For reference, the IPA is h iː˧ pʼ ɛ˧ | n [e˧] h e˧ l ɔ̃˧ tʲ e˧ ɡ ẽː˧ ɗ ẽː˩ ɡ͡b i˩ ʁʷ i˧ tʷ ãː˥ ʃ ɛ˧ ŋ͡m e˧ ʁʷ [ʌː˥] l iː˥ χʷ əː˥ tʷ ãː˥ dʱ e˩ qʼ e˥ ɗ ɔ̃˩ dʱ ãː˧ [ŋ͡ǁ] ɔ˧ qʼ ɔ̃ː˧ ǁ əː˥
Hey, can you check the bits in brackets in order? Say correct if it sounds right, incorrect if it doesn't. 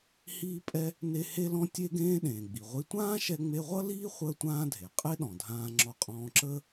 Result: correct, incorrect: ʌ˥, correct

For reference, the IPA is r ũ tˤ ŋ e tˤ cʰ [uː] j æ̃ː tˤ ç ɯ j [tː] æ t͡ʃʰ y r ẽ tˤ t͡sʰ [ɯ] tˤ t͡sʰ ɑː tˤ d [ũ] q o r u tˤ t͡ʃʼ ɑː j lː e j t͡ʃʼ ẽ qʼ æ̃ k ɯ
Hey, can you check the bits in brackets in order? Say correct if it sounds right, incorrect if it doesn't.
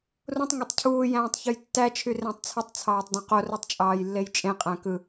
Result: correct, correct, correct, incorrect: õ

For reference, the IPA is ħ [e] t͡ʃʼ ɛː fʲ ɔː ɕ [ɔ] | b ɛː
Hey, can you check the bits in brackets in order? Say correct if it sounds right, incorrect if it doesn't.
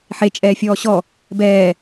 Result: correct, correct

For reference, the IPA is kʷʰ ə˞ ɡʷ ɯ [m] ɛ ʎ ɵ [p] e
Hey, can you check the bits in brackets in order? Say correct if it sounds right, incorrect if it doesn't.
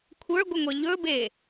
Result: incorrect: ŋʷ, incorrect: b

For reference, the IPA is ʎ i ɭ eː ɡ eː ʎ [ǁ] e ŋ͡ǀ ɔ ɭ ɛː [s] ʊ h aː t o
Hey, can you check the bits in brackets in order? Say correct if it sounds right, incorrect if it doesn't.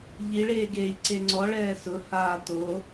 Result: incorrect: ǀ, correct

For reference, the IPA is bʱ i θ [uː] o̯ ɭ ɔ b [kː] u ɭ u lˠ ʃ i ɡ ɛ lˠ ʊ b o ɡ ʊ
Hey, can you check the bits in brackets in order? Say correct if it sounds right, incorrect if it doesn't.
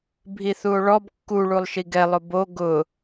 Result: incorrect: u, correct

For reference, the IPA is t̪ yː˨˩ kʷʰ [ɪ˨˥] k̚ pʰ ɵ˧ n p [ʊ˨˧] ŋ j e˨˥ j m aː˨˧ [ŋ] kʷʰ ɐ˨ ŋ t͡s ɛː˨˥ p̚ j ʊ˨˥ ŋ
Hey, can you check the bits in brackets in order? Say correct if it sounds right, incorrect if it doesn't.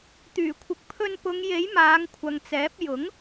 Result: incorrect: ɪ˨, correct, correct

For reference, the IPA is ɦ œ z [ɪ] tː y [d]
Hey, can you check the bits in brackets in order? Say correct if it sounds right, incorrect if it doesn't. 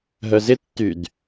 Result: correct, correct

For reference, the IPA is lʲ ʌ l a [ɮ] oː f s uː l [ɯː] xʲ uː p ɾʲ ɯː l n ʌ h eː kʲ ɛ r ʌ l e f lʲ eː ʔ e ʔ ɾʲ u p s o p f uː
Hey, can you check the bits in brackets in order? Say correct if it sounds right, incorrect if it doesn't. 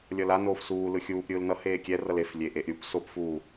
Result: incorrect: n, incorrect: ɯ

